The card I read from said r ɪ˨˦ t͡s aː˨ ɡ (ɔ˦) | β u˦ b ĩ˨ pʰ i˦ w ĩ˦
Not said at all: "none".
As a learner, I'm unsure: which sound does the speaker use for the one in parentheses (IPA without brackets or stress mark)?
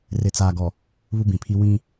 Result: ɔ˨